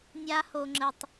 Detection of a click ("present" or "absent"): present